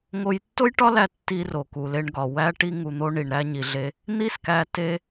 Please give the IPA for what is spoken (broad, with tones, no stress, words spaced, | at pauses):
ŋo˧jtːo˥jʈɒ˥læ˧ tːi˧ ro˩ku˩le˧ɳɡɒ˩ wæ˧ʈi˧ ŋu˩n̪o˥ ɳi˩ɳɾæ˧ ɲi˩ɮe˧ | n̪i˥skæ˧ te˥